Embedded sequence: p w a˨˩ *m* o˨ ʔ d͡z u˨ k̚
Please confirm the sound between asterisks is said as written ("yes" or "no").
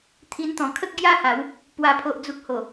no